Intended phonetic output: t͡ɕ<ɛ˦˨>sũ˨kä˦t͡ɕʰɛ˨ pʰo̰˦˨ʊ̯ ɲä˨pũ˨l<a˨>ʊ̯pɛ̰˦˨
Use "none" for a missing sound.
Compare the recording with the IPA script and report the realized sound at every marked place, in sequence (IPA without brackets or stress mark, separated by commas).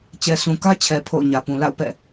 ɛ˨, a̰˦˨